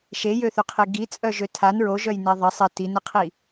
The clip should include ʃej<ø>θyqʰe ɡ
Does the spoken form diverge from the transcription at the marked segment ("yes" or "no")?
no